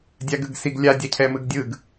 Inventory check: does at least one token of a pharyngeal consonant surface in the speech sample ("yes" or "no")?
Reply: no